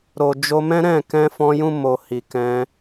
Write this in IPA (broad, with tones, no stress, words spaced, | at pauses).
ɾo˨d͡ʒo˧mɛ̃˦ ɾɛ̃˦˨ kɛ̃˧fɔ̃˧jũ˧ mo˨ hi˨kɛ̃˧